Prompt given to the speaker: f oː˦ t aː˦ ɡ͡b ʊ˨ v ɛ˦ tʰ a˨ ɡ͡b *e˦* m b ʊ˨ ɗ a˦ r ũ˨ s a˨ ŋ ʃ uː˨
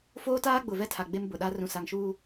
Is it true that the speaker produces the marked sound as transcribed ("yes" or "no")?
yes